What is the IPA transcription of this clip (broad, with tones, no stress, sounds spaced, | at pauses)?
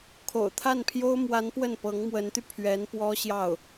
kʰ o̰˨˩ ʊ̯ t̪ʰ a˥˩ n pʰ j o˥ ʊ̯ m w a˧˥ n p w ə˥˩ n p ɤ˧˥ ŋ m w ə˧˥ n t̪ y˧ pʰ ɥ ɛ˧˥ n p w ɔ˥ ɕ j ɑ˥˩ ʊ̯